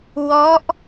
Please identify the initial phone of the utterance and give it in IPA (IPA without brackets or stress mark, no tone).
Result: w